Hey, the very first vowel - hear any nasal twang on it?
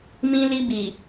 yes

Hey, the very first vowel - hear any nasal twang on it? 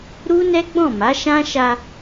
no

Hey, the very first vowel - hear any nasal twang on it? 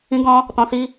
yes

